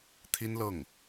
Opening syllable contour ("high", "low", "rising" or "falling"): high